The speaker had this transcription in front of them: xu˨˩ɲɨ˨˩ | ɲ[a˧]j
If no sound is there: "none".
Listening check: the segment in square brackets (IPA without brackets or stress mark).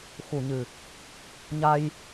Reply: a˧